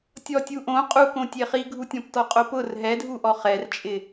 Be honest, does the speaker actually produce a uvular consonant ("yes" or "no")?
yes